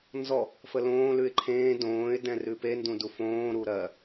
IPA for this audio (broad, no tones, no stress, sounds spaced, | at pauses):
n z ɔ | f ə l õː l ʉ ɪ̯ ǃʰ ẽː d õː ɪ̯ d ɛ̃ r ʉ p e n d ũ d u f õː ɾ u ɾ ɜ